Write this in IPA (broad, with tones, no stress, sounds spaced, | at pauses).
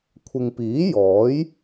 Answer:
kʷʰ ɪ˨ ŋ p iː˨˥ j ɔː˨˥ j